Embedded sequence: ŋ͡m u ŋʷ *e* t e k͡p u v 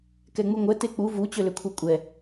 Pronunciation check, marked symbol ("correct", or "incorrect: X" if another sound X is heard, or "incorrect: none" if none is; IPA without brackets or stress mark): incorrect: ɛ